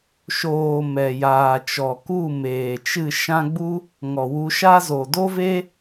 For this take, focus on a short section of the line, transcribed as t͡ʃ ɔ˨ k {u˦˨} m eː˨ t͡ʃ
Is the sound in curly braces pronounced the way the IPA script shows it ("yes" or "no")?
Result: yes